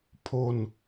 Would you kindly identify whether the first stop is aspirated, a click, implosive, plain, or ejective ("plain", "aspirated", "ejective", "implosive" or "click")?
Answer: aspirated